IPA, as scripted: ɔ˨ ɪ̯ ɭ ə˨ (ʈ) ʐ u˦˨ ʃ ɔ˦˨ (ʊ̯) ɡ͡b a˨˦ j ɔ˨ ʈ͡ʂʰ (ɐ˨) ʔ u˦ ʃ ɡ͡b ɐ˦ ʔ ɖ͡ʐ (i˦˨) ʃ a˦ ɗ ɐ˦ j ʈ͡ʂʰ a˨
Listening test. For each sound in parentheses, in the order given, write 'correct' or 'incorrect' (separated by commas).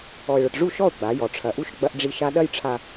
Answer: correct, correct, correct, correct